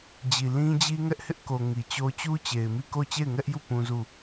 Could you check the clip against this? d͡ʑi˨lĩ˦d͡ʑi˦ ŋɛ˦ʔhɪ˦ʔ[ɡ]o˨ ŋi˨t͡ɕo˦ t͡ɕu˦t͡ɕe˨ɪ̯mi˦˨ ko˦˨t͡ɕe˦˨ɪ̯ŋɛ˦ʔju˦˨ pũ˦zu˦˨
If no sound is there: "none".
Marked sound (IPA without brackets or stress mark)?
k